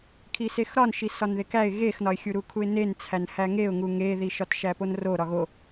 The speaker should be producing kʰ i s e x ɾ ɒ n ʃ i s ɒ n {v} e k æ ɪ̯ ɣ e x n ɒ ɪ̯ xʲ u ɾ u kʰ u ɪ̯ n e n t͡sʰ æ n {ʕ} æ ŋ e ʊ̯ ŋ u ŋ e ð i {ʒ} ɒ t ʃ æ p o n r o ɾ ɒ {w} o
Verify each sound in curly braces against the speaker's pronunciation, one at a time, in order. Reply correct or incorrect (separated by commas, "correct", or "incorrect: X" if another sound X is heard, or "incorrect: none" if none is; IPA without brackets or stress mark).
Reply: incorrect: ð, incorrect: h, incorrect: ʃ, incorrect: ɣ